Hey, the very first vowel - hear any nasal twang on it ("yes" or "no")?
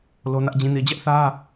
no